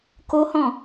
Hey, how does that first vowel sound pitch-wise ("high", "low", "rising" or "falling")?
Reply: high